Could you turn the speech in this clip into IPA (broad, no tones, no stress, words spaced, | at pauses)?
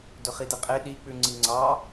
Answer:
dɵχideqʼe ɗik͡pʉŋ͡ǀi ŋ͡ǀɑ